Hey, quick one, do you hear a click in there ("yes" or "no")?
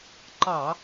yes